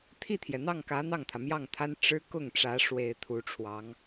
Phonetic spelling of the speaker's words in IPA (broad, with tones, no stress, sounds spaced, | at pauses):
t̪ʰ i˥˩ t̪ʰ j ɛ˩ n̪ ɑ˥˩ ŋ k ä˧˥ n̪ ɑ˥˩ ŋ t̪ʰ ä˩ m j ɑ˥˩ ŋ t̪ʰ a˥ n ʈ͡ʂ ɻ̩˥ k ʊ˥˩ ŋ ʈ͡ʂ ä˧˥ ʂ w e˨˩ ɪ̯ t̪ʰ u˧˥ ʈ͡ʂʰ w ɑ˧˥ ŋ